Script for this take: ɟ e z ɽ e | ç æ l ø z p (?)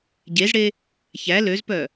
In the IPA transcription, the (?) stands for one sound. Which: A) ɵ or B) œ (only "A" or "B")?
B